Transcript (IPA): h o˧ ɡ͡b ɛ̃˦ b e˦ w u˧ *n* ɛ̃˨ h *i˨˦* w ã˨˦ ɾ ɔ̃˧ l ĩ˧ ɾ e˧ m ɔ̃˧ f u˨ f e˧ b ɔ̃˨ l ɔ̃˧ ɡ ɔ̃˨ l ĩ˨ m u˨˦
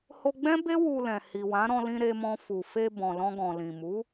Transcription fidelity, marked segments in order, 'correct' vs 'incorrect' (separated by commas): incorrect, incorrect